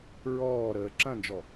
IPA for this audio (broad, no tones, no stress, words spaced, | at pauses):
ɹɔːɾəː ǁɐ̃nd͡ʒɔ